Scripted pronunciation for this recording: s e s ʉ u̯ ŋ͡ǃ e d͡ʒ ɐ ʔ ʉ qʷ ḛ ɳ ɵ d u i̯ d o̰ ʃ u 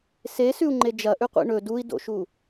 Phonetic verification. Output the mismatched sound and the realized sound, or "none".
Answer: none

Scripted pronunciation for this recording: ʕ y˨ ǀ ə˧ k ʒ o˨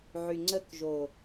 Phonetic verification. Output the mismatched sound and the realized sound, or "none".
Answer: ǀ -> ŋ͡ǀ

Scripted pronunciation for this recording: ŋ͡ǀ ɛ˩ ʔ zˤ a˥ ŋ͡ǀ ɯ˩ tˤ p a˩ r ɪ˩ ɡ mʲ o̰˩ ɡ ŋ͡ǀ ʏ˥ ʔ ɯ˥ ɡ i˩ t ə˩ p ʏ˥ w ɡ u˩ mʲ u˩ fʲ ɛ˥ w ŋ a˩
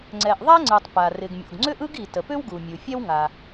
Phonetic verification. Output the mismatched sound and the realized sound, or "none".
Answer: zˤ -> ðˤ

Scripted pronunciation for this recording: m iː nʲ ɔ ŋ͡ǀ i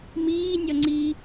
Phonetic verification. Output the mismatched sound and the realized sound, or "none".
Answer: none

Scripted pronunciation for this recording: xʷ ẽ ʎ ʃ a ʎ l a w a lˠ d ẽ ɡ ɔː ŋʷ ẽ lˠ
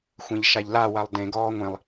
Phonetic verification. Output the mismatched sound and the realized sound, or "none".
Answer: none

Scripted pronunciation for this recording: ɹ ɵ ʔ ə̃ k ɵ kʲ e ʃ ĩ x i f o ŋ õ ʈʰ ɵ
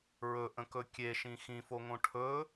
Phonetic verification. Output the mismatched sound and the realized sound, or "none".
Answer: i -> ĩ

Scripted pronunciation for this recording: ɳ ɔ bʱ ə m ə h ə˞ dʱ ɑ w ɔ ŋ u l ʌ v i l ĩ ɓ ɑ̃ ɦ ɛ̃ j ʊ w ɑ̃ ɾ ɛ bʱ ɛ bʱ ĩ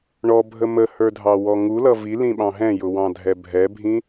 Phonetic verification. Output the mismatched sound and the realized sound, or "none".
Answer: ɾ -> dʱ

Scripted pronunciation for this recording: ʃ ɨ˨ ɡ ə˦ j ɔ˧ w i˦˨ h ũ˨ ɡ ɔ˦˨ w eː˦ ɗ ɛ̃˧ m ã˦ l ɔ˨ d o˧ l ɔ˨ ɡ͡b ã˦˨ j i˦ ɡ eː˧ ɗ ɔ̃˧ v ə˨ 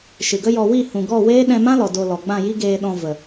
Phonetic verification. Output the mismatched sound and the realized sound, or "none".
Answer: none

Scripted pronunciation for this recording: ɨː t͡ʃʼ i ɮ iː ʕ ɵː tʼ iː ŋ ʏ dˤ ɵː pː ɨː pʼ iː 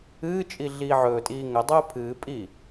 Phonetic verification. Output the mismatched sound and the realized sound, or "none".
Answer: pː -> pʰ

